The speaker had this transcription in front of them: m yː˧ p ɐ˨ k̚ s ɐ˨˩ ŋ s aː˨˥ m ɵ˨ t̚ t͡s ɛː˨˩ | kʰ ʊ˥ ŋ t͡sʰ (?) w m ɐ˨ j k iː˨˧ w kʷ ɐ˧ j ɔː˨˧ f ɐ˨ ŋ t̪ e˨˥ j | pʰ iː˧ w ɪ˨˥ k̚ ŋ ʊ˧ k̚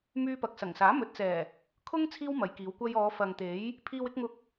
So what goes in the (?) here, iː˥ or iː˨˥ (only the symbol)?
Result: iː˥